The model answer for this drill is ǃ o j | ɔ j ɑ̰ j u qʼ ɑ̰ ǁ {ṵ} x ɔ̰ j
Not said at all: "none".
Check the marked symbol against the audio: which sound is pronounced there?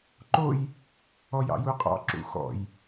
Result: ṵ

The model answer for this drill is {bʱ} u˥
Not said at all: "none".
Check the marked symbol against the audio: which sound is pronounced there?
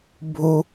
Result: bʱ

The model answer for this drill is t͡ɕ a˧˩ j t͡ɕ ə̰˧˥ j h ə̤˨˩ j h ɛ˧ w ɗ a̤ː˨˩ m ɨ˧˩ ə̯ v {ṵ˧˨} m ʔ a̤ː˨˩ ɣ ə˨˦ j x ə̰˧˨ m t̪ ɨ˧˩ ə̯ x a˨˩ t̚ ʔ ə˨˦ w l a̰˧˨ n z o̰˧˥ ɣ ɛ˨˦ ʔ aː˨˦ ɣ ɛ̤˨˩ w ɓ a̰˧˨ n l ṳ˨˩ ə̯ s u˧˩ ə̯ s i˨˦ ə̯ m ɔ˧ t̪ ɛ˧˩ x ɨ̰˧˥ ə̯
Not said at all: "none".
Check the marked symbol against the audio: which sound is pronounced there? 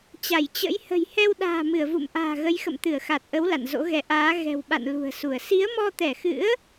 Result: ṵ˧˨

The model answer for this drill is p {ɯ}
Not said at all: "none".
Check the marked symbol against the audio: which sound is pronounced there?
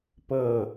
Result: ɤ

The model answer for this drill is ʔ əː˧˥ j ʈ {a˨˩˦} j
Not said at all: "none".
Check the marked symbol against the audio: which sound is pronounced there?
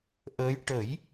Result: ə˨˩˦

